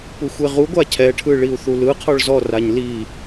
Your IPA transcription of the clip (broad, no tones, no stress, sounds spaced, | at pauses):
p u xʷ e ʁ u ɡʷ a cʰ ɛ ʈʰ ɯ ɭ i u̯ θ u l ɯ qʰ ɔ ɭ z ɔ r a ɲ l i